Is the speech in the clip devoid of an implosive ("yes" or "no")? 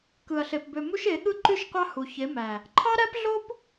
no